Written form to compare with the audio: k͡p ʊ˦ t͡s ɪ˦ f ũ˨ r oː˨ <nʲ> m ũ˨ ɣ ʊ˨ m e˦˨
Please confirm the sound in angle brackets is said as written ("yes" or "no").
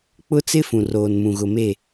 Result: no